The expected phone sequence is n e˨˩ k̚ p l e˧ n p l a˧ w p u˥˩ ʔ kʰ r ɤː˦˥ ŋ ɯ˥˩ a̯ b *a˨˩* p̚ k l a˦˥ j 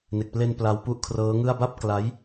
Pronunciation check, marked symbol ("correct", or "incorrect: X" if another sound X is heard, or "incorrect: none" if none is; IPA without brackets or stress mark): incorrect: a˥˩